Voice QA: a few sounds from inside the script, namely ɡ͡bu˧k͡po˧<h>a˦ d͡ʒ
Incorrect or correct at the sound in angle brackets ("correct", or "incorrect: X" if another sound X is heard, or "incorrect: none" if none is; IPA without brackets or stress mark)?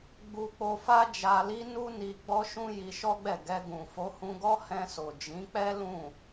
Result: incorrect: f